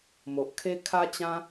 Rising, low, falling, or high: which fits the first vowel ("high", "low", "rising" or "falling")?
low